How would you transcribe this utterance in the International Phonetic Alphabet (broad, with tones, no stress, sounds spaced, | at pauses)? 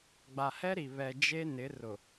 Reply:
ɡ͡b a˨ h ɛ˦ ɾ i˨ β ɛ˨ d͡ʒ e˦ n ɪ˨˦ r ʊ˨